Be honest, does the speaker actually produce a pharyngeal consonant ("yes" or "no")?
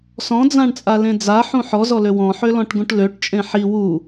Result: yes